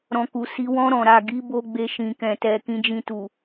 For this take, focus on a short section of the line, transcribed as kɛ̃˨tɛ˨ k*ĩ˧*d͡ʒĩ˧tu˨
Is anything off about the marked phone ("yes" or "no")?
no